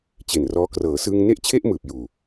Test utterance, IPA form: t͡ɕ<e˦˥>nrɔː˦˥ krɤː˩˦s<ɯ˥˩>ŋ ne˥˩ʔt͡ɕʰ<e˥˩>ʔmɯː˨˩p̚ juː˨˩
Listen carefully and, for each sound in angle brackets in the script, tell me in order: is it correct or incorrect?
incorrect, incorrect, correct

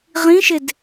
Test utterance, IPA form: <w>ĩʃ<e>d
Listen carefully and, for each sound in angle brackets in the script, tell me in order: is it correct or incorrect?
incorrect, correct

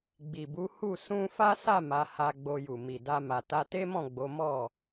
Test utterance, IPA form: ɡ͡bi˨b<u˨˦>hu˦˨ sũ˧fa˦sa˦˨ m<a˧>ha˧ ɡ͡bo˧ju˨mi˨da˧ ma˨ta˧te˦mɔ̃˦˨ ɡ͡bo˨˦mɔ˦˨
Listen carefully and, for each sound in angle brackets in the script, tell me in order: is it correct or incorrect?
correct, incorrect

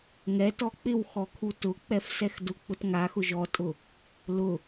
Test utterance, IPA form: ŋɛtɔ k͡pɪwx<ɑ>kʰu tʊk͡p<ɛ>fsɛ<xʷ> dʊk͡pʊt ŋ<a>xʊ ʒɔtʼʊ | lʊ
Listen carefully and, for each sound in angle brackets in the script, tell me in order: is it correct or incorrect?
incorrect, correct, incorrect, correct

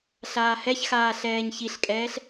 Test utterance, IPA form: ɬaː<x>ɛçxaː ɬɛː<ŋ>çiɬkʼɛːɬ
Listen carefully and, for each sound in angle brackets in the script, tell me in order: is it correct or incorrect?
incorrect, incorrect

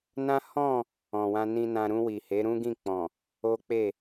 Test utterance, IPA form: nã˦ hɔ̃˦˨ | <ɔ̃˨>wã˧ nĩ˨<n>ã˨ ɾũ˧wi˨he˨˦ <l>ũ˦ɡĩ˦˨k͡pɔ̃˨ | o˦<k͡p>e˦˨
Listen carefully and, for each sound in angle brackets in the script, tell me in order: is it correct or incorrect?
correct, correct, incorrect, correct

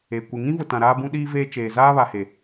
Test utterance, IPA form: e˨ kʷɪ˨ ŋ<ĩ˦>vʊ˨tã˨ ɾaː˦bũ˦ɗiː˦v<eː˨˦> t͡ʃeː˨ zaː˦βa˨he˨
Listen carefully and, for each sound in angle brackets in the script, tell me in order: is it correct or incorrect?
correct, incorrect

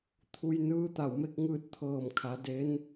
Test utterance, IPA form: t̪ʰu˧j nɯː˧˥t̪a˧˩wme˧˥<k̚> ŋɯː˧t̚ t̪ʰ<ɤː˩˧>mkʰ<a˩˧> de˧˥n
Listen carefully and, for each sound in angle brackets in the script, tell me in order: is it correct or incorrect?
correct, incorrect, correct

